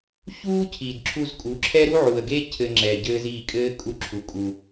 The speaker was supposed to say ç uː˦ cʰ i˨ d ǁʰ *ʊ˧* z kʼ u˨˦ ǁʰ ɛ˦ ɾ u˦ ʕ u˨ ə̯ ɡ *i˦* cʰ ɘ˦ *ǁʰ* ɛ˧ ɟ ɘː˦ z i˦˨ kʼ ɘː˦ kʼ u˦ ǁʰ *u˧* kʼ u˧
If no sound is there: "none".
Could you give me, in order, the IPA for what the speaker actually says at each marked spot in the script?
u˧, e˦, ŋ͡ǁ, u˧

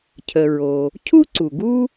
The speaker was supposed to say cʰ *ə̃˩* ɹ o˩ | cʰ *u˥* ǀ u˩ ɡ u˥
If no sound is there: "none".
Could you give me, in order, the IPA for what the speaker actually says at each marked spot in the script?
ə˩, u˥

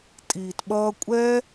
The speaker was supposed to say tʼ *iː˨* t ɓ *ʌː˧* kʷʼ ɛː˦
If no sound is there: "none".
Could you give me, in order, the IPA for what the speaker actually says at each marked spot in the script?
iː˨, ʌː˧

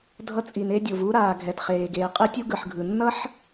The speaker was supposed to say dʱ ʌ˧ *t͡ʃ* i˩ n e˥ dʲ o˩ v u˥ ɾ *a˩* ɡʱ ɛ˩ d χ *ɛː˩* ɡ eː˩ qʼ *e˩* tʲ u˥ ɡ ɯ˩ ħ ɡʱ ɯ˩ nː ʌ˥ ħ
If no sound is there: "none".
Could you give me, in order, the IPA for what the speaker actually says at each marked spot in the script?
t͡sʼ, aː˩, eː˩, e˥

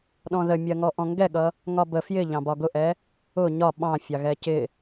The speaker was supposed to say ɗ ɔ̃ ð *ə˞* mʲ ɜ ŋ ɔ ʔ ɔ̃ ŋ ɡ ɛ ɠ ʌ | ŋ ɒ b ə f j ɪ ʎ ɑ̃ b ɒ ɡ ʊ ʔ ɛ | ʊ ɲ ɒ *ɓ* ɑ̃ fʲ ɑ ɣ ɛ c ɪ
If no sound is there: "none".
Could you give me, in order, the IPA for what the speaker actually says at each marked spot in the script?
ə, ɓ

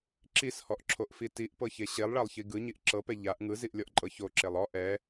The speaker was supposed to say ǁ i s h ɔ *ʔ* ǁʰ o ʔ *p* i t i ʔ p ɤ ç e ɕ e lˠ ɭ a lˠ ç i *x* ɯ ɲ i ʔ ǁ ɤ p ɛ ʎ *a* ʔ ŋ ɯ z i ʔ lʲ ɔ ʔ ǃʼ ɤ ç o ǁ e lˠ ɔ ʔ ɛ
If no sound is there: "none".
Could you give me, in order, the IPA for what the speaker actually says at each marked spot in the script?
ʔ, f, ɡ, a

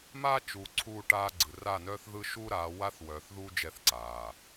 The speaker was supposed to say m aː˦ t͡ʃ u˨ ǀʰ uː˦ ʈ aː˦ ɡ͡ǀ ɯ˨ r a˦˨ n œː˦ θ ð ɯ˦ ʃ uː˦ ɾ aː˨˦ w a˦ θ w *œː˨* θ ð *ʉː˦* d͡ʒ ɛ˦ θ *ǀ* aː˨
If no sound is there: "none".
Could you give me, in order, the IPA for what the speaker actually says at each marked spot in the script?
œː˨, uː˦, ǀ

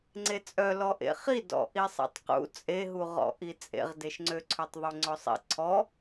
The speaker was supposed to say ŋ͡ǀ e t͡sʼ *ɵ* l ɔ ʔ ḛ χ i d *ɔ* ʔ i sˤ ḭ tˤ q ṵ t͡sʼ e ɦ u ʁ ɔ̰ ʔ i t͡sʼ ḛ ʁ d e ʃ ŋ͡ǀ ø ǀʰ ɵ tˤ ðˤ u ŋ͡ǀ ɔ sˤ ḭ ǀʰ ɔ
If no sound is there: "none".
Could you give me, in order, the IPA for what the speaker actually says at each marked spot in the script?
œ, ɔ̰

